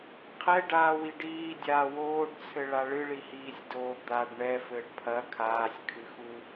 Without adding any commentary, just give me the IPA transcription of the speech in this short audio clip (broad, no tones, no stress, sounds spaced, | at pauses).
qʰ ɛ ɖ aː w i ɖ iː dʲ aː w oː ɖ t͡sʰ ɘ ɭ a ɭ ɨ ɭ i h iː sʲ d oː d̪ a ɖ ɳ ɛ f ɘː ɖ pʰ ɐ kʰ aː sʲ kʰ ɨ x u